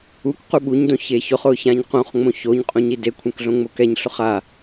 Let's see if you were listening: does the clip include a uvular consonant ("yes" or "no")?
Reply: yes